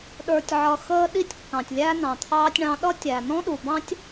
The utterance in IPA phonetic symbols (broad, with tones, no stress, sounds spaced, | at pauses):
ɗ ə˞˨ tʲ ʕ ʌ˨ x əː˧ ɗ i˧ tʲ kː ɑ̃˨ tʲ lʲ æ˦ n ɑ̃˨ t̪ʰ ɑː˦ tʲ ɳ ɑ̃˧ ɗ ʌ˦ tʲ æ˨ n ɔ̃˦ ɗ u˨ b ɑ̃˦ tʲ